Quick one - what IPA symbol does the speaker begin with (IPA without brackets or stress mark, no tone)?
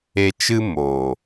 e